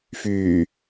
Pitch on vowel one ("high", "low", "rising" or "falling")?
low